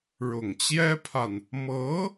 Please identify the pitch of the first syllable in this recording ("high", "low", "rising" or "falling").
low